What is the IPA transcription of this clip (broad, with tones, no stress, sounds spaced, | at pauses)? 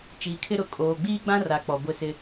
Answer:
t͡ʃ iː˨ kʰ ɪ˦ ɾ ʊ˨ kʼ oː˨ ɡ͡b iː˦ ɡ͡b ã˦ r a˨ k͡p ɔ˨ ɡʷ ɪ˦˨ s ɪ˦